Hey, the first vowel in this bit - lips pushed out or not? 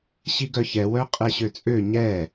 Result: no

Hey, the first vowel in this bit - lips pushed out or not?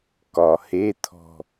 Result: yes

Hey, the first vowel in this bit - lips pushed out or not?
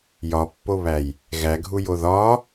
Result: yes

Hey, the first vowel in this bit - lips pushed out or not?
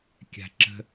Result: no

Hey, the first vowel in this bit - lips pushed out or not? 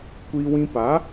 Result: no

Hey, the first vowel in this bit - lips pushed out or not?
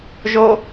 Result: yes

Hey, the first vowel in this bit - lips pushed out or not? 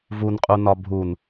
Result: yes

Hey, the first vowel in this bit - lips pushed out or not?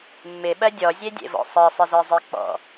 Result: no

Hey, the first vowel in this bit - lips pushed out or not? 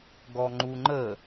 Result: yes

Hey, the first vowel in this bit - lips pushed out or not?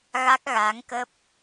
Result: no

